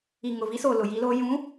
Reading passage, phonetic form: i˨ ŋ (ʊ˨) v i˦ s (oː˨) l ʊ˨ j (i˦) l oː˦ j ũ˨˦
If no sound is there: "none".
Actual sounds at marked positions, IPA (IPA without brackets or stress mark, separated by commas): ʊ˨, oː˨, i˦